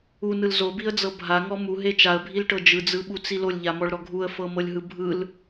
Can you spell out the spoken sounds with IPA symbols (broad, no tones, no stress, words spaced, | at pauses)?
unɯl zobiə̯d͡zɤ bʱaŋɔ muɦe t͡ʃaə̯bʱilʈɤ d͡ʒɯd͡zɯɓut͡si lolʲʎamɔɭɾɔ ɡʱuə̯fɤmɤlʲɦɯ bʱɯl